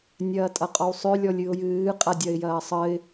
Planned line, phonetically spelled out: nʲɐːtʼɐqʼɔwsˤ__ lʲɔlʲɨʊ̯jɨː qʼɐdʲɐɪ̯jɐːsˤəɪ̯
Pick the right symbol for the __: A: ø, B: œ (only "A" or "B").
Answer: A